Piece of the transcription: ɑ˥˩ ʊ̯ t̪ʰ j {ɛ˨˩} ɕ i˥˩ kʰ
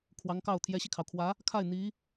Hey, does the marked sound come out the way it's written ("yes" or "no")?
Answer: no